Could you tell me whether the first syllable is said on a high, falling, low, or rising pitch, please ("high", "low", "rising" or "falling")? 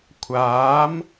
rising